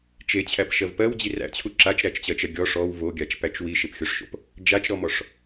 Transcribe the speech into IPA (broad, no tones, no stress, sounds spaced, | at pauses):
t͡ʃ e t͡ɕʰ æ p ʃ ɜ v p ɜ w d͡ʑ i r æ̰ t͡ɕʰ u ǁ a t͡ʃ ɾ æ t͡ʃ t͡ɕ ɜ t͡ʃ ɜ ɡʲ ɔ ʂ ɔ w v o ɡʲ a t͡ʃ p æ t͡ʃ w i ʃ e p xʲ o ʂ ʃ o̰ p | d͡ʒ a t͡ʃ ɾ ɔ m ɔ ʂ